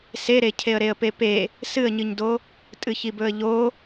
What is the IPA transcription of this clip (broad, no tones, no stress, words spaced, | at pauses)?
seɾe cʰeə̯ɾeə̯pepe | sɨə̯ɲɨɲdo | tʼɨçibɵə̯ʎo